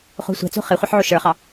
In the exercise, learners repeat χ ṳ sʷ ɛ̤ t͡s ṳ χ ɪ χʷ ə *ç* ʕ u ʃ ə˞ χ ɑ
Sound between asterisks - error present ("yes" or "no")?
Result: yes